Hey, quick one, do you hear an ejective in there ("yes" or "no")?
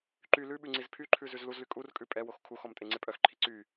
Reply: yes